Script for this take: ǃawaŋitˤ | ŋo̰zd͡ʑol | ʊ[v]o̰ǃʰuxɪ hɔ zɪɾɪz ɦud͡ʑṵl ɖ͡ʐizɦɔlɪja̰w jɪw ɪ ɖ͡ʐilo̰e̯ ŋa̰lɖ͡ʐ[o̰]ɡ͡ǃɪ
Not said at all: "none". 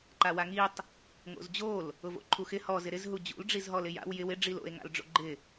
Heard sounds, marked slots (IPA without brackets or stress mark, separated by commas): v, o̰